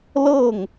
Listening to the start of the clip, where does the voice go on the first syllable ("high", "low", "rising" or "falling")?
falling